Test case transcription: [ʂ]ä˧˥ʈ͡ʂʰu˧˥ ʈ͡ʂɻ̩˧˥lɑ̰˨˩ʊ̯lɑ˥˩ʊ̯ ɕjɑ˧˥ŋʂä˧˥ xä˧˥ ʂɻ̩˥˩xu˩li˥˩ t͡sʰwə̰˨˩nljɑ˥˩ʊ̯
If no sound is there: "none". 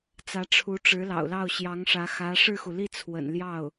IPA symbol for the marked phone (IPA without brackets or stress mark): t͡s